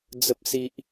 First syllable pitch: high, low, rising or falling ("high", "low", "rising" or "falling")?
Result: high